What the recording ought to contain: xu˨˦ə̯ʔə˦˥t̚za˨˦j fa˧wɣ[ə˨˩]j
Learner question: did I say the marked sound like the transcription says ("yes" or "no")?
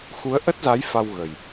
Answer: yes